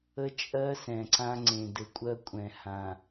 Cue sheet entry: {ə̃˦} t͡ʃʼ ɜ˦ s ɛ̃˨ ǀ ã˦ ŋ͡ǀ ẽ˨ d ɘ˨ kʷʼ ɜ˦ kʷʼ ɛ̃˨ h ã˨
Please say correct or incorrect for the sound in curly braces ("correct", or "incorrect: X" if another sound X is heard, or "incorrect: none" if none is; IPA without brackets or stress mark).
incorrect: ə˦